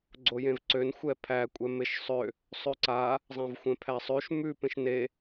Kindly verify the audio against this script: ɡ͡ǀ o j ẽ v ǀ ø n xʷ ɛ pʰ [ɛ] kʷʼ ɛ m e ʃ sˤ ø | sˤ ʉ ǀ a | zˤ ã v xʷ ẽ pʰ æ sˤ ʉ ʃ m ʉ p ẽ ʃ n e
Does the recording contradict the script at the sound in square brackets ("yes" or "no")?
yes